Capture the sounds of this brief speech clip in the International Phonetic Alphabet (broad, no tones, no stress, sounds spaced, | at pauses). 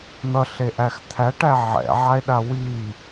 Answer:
n̪ ʌ ɬ e ʔ æ x t̪ʰ æ ʈ æ ʕ ɛ̰ ʕ a e̯ ɗ a w i